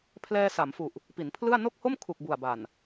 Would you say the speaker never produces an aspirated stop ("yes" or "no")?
no